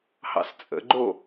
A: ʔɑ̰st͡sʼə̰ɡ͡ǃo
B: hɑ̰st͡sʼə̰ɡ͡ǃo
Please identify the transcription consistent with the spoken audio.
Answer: B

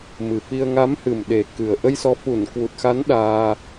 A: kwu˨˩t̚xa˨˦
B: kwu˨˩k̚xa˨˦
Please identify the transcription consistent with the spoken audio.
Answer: A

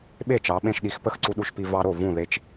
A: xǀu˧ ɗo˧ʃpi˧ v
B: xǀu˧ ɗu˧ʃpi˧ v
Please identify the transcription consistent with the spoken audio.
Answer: B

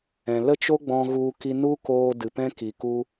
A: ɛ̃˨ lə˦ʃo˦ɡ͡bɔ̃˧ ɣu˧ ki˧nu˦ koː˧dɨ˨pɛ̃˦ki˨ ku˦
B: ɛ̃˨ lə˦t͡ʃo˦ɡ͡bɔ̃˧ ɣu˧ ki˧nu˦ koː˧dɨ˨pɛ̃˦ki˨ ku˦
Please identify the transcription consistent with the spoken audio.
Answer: B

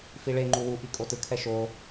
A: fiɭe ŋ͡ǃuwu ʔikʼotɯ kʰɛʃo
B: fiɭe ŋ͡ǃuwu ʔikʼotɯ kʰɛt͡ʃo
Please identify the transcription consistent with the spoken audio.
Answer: A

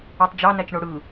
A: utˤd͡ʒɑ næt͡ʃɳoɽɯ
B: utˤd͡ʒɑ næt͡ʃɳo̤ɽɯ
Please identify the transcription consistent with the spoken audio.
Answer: A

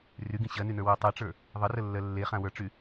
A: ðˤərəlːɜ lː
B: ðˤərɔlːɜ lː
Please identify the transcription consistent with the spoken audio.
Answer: A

